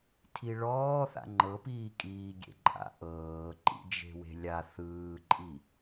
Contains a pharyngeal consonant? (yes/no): no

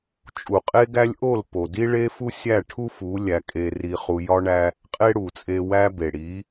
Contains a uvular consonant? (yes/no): yes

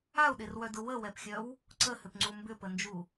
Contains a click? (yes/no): yes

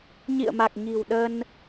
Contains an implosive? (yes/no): yes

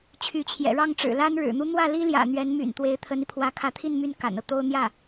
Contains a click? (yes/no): no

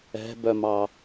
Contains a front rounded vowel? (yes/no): yes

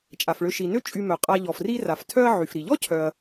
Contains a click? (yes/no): no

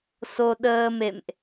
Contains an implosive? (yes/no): yes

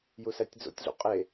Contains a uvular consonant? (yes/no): yes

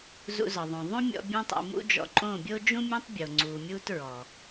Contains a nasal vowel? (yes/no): yes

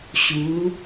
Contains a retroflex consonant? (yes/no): no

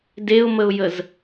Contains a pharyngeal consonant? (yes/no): no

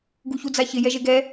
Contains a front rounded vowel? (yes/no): no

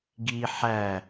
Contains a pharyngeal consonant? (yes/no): yes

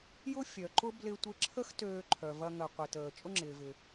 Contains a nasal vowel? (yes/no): no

